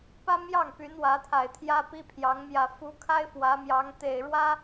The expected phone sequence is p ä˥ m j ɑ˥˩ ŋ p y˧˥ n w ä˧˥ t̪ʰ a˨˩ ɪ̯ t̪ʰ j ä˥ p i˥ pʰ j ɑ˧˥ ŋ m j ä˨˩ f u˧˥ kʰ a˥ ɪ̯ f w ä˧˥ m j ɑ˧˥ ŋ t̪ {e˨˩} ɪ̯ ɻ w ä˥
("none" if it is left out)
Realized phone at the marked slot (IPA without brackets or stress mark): e˨˩